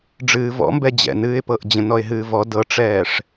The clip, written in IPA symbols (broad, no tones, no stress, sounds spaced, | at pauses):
ɖ͡ʐ ɨː v ɔ̰ m b ɛ d͡ʑ ɛ̰ n ɨː ɪ̯ p ɤ ʔ d͡ʑ ə̃ n ɔ ɪ̯ ɦ ɨː v ɔ d ɤ ʈ͡ʂ ɛː ʂ